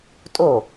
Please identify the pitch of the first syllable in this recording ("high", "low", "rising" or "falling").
falling